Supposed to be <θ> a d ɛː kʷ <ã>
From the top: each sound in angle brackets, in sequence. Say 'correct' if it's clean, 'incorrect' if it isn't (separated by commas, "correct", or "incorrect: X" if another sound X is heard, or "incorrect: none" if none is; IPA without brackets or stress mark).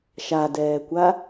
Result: incorrect: ʃ, incorrect: a